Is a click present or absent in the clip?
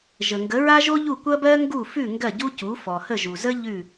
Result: absent